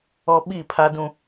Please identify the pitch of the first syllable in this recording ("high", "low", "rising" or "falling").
high